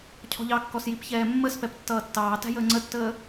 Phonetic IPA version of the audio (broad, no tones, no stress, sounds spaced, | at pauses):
cʰ ɔ̤ ʎ ɑ kː ɔ s j i p ç ɛː mː ə s p ɛ p tː ʌː tː ɑː t æ̤ j əː ŋ͡ǀ ə tː əː